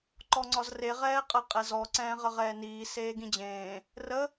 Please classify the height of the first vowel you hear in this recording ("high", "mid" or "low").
mid